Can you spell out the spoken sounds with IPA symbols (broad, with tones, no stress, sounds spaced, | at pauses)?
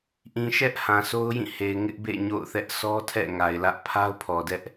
ʔ ĩ˨ ʃ ɛ˦ ʔ h ã˨ s o˦ ʊ̯ j ĩ˦˨ h e˨ ɪ̯ ŋ ɪ˦ ʔ b ḛ˦˨ ɲ o̰˦˨ ʊ̯ θ ɛ˦ ʔ sʰ ɔ˦ tʰ ɛ̰˦˨ ŋ a˨ ɪ̯ l ä˦ ʔ pʰ a˦ ʊ̯ pʰ ɔ˨ d ɛ˦ ʔ